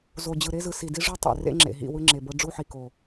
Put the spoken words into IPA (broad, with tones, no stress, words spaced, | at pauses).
zo˨d͡ʑɯ˨ɾe˦zɯ˨ si˨di˦ʐu˦ tˤḛ˨rḛ˦ŋ͡ǁḛ˨ ɦḭ˦˨wɯ˦ŋ͡ǁe˨bɤ˦ ɖ͡ʐu˦ħi˨ko˨